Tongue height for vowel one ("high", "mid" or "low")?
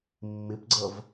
high